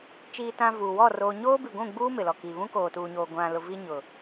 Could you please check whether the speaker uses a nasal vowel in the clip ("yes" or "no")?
yes